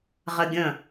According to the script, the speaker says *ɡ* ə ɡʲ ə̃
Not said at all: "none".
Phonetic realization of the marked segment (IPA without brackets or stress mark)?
ʁ